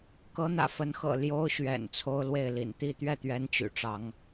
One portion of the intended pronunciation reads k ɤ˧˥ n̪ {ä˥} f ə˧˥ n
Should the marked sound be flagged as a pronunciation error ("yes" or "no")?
yes